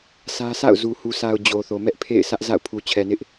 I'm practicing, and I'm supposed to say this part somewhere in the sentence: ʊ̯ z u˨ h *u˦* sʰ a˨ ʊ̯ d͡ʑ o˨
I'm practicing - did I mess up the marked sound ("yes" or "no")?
yes